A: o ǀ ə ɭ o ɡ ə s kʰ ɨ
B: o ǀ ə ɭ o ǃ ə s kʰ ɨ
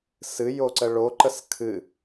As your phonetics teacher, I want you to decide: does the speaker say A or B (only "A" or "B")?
B